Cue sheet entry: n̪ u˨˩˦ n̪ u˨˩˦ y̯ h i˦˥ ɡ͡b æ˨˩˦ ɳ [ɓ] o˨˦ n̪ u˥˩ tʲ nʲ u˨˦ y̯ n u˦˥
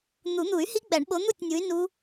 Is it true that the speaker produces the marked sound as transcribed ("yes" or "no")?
yes